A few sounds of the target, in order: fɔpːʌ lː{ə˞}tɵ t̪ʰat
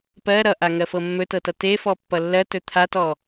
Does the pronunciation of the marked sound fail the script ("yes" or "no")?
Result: yes